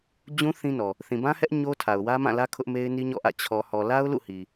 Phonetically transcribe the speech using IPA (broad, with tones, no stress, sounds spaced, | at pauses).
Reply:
d͡ʑ ũ˦ θ ĩ˦ n ɔ˨ | θ ĩ˨ b ã˦ h ɛ˦ ʔ ɲ o˦ tʰ a˨ ʊ̯ w ä˦ m ã˦˨ l ä˦ kʰ ʊ˦ ʔ m e˦ ɪ̯ n i˦ ɲ ɔ̰˦˨ ʔ ä̰˦˨ t͡ɕʰ ɔ˨ h ɔ˨ l a˦ ʊ̯ l ṵ˦˨ h i˨